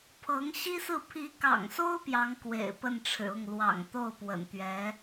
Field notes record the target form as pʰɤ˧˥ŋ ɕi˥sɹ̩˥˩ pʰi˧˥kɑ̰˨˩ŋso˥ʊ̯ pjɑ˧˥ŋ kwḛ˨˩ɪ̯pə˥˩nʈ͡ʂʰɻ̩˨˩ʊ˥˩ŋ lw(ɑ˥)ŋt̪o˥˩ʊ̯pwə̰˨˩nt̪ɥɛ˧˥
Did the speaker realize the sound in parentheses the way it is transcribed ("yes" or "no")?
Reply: no